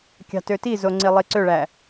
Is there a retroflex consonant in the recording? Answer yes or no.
yes